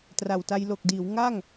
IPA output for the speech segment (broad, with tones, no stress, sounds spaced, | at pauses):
t r a˨˩ w t a˧ j l o˨˩ k̚ d iː˩˦ w ŋ a˥˩ ŋ